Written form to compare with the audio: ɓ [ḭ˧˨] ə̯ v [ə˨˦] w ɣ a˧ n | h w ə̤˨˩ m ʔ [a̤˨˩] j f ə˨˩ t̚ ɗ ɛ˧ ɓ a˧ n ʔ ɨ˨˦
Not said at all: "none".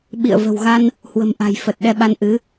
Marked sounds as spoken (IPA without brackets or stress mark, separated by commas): ḭ˧˨, ə̤˨˩, a̤˨˩